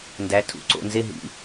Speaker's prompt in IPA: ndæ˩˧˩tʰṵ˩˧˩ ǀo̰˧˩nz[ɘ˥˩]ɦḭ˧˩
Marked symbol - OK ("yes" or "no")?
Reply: no